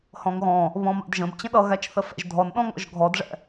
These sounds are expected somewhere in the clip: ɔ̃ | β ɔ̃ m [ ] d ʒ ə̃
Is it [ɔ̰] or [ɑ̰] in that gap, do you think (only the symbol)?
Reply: ɑ̰